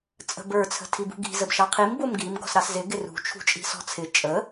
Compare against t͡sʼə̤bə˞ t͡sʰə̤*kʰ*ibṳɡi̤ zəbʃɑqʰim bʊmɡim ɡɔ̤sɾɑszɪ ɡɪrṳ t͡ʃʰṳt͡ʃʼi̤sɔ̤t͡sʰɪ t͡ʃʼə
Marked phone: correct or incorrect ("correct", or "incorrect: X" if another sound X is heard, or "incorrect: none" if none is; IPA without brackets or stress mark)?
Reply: incorrect: tʰ